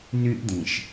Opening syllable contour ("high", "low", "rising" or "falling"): high